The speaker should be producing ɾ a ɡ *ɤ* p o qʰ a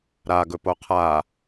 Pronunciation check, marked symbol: incorrect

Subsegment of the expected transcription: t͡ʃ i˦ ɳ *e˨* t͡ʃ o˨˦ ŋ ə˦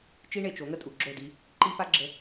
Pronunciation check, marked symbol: correct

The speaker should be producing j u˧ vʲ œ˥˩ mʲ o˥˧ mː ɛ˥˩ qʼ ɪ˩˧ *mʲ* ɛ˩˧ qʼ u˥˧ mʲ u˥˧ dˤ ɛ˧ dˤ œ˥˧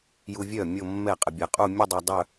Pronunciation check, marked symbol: incorrect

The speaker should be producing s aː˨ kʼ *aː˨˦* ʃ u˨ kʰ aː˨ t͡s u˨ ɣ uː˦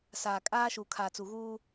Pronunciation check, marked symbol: incorrect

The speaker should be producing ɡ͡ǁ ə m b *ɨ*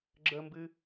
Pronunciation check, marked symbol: correct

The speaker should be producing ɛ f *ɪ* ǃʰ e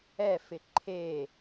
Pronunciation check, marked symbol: correct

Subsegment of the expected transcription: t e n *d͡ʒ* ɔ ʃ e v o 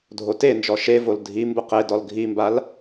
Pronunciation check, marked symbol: correct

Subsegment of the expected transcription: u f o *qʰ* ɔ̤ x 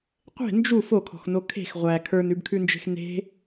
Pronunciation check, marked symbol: incorrect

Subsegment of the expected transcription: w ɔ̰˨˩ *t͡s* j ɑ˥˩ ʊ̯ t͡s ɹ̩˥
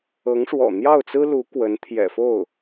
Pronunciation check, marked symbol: incorrect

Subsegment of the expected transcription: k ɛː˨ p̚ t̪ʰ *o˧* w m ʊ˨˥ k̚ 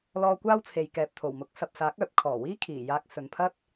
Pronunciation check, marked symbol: incorrect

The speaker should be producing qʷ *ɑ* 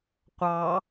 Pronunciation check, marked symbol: correct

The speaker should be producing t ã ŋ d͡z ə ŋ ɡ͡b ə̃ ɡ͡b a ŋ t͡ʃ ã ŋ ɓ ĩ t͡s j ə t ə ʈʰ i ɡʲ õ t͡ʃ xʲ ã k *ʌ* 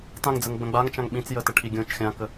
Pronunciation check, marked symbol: incorrect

